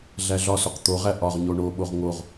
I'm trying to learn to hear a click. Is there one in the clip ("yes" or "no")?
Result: no